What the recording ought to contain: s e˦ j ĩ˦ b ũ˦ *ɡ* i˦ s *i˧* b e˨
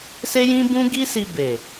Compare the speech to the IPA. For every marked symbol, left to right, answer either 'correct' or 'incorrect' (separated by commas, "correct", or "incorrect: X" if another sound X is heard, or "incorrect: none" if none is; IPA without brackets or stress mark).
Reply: correct, correct